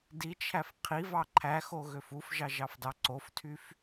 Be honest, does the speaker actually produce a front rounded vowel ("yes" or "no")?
yes